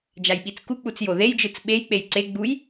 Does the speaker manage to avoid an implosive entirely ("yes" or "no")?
no